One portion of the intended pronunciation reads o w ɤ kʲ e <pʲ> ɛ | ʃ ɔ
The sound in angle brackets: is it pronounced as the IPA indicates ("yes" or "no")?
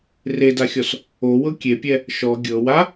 yes